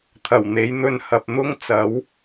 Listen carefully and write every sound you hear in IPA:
t̪ʰɐ˨˩wn̪e˨˥j n̪ɵ˧nhɐ˨p̚n̪ʊ˥ŋ t͡sɐ˨˥w

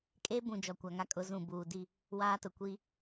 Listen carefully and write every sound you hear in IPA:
kʼe˦bũ˨ d͡ʒɔ˨kʷa˨ŋa˦kʼʊ˨˦ zũ˨buː˨ di˦˨ | waː˦tʊ˨ kʷi˦

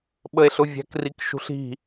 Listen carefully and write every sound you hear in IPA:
ɓəe̯ɬʊvʲæ̤k rikʃṳɬi̤

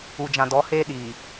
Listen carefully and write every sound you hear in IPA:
u˨d͡ʒã˨ dɔ˨˦heː˦ ɗiː˨

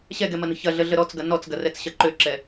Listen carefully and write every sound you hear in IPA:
ɕɛɡɛmɐnə̤ çɐɮəɮə ɾɔt͡sɡɐ nɔt͡sɡɐrɛt͡sɕɐ ǃøǁɛ

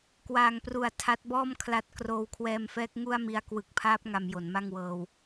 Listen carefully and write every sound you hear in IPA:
kwaː˨˩ŋpru˨˩a̯ tʰa˦˥t̚bɔː˥˩m kʰla˦˥t̚ kroː˧wkʰwɛː˧mfɛː˦˥k̚ ŋu˥˩a̯mi˧a̯ kwɯ˨˩k̚pʰaː˦˥p̚ ŋa˧mjo˩˦nma˥˩ŋwɤː˧w

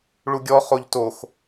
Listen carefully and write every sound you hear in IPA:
ɭuɡʲɔ χoʎtox

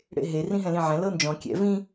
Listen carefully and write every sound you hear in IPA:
ɽḛɦe rĩɦɛ̃lĩʕɛ̃ lɤnd͡ʒɔ̃ kʲɛ̰ vĩ

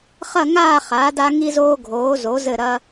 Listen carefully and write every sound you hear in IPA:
χɐ˥˧ŋaː˥˧ χaː˩˧da˧ ŋi˧ zoː˧ɡʱoː˩˧zo˩˧ zɘ˧˩ɾɐ˧

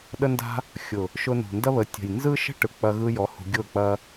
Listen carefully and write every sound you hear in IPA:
ɗə˧nda̤˧ | xʲʊ˨ | ʃʊ˧nṳ˨ndɐ˦βə˨˦ tʲə̤˨j nzɯ˦ ʃə̤˦ ʈɯ˨k͡pɐ˧ɣɯ˧jɔ˨˦ hṳ˧ ɡʲʊ˦˨k͡pɐ˦

